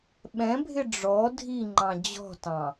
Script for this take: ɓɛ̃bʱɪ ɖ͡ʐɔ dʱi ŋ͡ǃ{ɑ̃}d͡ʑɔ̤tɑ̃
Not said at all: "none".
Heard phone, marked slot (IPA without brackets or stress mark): ɑ̃